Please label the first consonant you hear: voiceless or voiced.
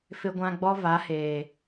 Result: voiceless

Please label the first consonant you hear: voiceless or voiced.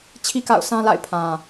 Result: voiceless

